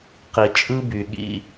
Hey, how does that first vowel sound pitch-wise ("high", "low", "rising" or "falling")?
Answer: low